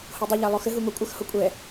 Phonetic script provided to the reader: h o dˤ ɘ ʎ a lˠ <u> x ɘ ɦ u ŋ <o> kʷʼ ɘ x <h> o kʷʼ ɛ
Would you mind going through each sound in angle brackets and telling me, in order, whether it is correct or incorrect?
incorrect, correct, correct

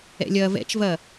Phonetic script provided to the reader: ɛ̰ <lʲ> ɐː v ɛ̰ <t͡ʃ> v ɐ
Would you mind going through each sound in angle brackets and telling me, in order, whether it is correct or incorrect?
correct, correct

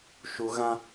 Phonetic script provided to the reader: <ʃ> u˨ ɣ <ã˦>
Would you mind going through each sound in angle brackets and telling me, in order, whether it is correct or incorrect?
correct, correct

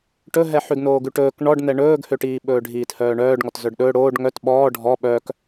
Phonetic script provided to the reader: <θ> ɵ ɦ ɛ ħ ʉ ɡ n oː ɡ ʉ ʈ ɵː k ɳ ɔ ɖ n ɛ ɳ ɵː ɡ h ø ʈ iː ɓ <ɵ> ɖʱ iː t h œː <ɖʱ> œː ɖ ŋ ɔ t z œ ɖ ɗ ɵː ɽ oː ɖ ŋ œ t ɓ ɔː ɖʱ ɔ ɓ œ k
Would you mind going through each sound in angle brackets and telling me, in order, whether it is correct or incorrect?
incorrect, incorrect, incorrect

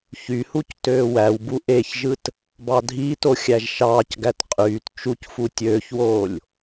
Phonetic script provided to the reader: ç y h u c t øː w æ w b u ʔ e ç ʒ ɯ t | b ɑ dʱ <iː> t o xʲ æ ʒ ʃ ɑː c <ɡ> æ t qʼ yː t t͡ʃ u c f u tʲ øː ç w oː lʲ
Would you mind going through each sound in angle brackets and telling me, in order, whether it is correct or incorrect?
correct, correct

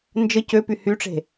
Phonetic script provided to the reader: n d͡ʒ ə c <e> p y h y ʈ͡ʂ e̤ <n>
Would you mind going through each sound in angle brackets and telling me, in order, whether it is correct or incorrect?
incorrect, incorrect

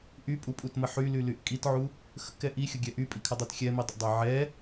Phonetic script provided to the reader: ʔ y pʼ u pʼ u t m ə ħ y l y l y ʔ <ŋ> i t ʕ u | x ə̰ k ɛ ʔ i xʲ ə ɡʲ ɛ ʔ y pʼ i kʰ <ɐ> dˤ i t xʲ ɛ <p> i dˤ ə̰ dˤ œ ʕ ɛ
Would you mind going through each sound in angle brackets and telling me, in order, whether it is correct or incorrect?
incorrect, correct, incorrect

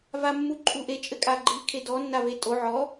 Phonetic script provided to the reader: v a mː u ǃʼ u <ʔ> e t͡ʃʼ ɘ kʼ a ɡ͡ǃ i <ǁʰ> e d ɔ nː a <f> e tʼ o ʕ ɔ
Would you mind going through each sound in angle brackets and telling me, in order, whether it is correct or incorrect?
correct, incorrect, incorrect

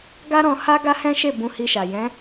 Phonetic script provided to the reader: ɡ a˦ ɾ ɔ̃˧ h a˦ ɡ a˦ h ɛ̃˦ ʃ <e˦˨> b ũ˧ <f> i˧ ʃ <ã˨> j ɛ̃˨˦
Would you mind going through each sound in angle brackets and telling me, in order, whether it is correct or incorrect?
correct, incorrect, incorrect

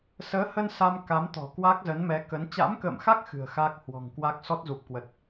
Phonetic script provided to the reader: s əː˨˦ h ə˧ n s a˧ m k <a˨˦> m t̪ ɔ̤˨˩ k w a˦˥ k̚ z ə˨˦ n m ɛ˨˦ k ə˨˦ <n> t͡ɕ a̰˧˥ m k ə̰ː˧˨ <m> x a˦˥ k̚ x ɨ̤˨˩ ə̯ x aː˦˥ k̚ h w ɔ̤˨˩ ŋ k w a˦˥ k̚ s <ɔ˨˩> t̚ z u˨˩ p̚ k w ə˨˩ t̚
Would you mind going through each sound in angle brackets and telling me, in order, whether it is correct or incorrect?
correct, correct, correct, incorrect

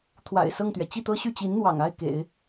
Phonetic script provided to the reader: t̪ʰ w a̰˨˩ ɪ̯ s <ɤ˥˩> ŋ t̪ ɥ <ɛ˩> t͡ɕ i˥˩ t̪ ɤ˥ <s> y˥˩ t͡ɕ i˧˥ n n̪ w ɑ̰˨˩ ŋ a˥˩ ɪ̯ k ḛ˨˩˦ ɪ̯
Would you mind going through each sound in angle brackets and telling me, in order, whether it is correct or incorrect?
correct, correct, incorrect

